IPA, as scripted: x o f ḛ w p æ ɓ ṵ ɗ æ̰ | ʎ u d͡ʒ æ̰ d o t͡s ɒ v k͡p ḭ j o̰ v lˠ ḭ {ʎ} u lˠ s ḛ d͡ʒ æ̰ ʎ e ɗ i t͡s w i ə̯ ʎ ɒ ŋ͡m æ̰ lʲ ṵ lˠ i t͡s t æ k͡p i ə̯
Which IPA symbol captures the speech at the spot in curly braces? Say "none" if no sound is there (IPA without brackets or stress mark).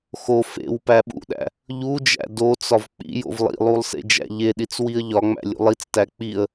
lˠ